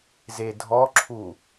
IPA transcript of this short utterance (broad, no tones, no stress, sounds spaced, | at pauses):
z e dʱ ɔ ǁʰ u